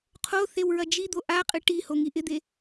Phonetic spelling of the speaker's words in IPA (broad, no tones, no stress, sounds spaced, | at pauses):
qʰ o θ e w ɹ ɐ d͡ʒ i d̪ o ʔ a qʼ ɨ ʈ i h o ŋ i ʔ ɪ d̪ e